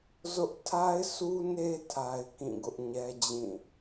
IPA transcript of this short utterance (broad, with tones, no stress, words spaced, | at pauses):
zʊ˦ʔ tʰa˦ɪ̯sʰu˦ne˦ tʰa˦ɪ̯kĩ˦˨ɡʊ˦ʔ ɲɛ˦d͡ʑĩ˦˨